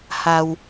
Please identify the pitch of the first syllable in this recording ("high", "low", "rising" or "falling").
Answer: low